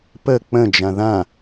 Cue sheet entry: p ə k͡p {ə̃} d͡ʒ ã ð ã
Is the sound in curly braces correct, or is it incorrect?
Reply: correct